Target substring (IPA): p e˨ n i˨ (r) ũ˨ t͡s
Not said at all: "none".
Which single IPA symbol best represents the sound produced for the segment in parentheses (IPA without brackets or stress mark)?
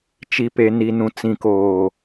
n